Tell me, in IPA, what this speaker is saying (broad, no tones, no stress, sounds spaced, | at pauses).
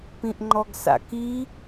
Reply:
p ĩ ʔ ŋ͡ǃ ɔ ɡ s a̰ k i